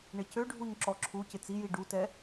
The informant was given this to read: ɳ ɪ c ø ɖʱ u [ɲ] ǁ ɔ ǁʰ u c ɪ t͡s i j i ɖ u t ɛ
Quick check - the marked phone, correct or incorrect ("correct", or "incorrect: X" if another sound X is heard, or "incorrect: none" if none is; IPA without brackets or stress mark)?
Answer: correct